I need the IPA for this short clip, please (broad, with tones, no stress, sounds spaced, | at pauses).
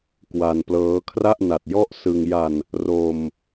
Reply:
k w a˧ n p l ɤː˦˥ kʰ r a˥˩ ʔ n a˨˩ t̚ j ɔ˥˩ ʔ s ɯ˧ ŋ j a˧ n | r o˧ m